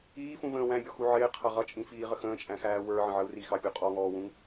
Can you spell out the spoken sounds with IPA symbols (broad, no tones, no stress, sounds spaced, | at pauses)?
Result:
iː f ũ v ə̃ː w æ̃ bʲ ɔ x u ʕ ɪː qʰ ʌ ʁ ʌ t͡ʃʼ ĩ f iː ʁ ə x ə̃ː t͡ʃʼ æ̃ x æː w ə˞ ʕ ə̃ ʕ ə u̯ r i x ɑ pʲ u qʼ ɔ ŋ ɔː w ũ ŋ